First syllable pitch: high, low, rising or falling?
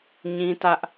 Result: high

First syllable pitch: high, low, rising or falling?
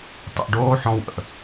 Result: low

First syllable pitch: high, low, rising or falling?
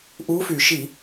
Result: rising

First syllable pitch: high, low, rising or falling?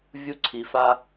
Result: high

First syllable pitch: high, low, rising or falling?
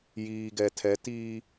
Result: low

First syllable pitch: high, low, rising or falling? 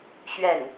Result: falling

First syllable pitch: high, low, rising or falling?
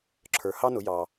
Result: low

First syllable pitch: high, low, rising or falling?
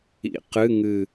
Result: rising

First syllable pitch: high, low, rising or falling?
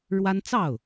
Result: high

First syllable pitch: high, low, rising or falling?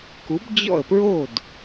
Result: rising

